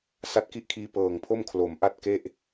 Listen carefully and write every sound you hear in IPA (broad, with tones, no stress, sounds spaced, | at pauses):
s a˦˥ t̚ k i˥˩ ʔ kʰ iː˧ p ɤː˨˩ ŋ pʰ o˥˩ m kʰ l o˩˦ m ʔ a˥˩ t̚ k e˥˩ ʔ